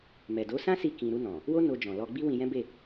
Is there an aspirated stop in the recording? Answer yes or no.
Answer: no